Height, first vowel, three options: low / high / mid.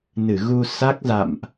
high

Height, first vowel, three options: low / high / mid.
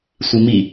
high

